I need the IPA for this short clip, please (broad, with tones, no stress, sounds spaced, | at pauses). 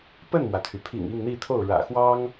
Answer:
p ə˥˩ n m w ä˩ t̪ʰ y˩ pʰ ḭ˨˩ ŋ i˥˧ ŋ n̪ i˥˧ t̪ʰ o˥˩ ʊ̯ ɻ ä̰˨˩ x w ɑ˥ ŋ